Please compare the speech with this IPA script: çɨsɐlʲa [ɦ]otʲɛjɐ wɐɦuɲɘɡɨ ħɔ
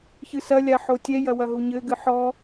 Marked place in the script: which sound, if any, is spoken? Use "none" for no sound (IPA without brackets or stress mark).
ħ